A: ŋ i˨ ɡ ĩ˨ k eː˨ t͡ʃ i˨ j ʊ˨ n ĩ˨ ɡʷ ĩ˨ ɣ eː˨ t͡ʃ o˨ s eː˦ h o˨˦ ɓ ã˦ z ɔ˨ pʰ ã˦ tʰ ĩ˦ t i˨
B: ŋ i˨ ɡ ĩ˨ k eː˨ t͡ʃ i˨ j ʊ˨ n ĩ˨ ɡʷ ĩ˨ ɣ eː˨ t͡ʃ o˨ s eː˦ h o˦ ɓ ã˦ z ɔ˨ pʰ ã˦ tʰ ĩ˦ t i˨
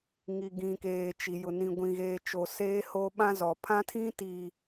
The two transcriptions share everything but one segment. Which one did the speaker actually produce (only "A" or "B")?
B